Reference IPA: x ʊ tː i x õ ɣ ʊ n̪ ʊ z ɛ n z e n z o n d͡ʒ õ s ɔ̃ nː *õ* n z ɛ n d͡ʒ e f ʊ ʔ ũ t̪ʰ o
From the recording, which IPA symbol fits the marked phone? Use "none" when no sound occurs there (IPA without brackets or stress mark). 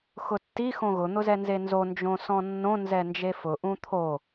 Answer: õ